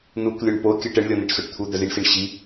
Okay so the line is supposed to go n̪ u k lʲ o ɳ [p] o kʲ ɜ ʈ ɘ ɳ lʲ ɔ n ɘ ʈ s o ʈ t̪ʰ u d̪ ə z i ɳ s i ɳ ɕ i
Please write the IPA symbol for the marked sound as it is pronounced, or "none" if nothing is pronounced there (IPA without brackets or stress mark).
p